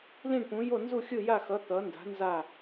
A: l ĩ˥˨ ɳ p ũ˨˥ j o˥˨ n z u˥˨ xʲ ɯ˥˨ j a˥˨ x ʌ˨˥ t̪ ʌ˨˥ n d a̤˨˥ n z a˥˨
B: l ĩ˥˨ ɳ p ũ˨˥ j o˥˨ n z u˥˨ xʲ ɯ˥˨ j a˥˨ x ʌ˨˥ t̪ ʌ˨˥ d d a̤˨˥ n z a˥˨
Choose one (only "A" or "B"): A